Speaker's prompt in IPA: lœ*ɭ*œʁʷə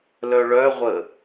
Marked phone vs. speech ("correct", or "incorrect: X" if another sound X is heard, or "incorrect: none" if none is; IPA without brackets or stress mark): correct